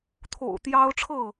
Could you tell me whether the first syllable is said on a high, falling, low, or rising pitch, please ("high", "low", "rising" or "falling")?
low